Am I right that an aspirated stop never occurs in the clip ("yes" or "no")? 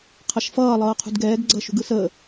no